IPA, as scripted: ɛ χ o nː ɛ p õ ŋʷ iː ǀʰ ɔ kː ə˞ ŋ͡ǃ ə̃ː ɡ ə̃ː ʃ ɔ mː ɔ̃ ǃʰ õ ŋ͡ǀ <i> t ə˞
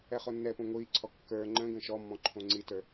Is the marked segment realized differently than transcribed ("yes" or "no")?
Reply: no